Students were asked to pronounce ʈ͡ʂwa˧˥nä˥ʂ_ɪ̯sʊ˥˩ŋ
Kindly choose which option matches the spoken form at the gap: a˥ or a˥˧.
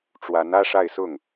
a˥˧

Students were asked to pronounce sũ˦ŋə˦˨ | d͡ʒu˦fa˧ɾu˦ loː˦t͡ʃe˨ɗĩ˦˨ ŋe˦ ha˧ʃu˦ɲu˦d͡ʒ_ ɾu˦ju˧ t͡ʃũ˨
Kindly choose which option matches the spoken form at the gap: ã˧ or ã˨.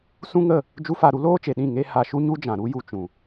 ã˨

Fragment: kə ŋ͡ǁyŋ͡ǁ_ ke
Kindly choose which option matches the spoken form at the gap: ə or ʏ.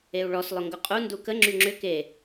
ʏ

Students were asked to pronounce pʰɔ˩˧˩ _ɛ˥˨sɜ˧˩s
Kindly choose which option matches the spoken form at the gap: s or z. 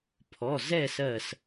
z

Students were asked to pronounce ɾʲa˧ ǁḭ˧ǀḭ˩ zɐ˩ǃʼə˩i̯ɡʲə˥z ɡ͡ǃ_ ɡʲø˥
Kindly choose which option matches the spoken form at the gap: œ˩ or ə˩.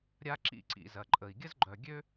œ˩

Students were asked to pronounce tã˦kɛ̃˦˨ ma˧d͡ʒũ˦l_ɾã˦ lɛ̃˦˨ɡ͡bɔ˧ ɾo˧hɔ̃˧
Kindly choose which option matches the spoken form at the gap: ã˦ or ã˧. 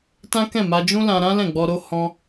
ã˧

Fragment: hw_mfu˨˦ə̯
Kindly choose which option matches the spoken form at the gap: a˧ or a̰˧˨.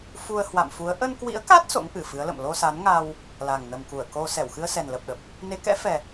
a̰˧˨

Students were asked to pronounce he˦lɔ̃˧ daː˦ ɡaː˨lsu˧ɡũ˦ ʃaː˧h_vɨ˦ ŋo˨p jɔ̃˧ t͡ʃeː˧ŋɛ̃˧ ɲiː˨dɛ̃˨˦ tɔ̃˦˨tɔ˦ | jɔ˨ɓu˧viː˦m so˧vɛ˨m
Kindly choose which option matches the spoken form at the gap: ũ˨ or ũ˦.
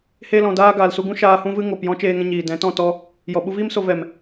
ũ˦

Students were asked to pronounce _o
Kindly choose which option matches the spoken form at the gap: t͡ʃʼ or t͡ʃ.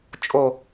t͡ʃʼ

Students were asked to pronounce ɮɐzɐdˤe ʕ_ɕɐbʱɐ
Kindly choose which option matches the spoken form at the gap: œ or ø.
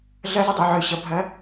ø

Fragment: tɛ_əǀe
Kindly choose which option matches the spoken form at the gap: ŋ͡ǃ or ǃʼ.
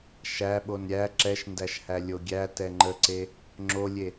ŋ͡ǃ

